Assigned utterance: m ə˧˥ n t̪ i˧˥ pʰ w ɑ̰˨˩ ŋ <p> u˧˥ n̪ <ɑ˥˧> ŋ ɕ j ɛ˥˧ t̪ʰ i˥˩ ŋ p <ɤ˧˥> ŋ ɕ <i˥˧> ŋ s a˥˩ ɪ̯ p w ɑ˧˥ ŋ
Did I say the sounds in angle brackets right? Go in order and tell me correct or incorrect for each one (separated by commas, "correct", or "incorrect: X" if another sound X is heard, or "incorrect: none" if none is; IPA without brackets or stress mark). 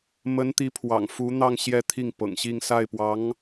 incorrect: f, correct, incorrect: ɤ̰˨˩, correct